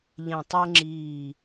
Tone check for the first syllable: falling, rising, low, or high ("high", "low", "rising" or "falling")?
low